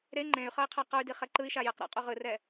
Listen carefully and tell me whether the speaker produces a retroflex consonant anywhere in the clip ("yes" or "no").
no